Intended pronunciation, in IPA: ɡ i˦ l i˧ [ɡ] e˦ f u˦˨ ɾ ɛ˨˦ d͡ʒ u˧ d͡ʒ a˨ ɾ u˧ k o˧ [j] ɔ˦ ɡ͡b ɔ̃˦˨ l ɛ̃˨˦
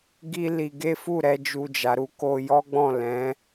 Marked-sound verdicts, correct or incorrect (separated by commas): correct, correct